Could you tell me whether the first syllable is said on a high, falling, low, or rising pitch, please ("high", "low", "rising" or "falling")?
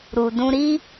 low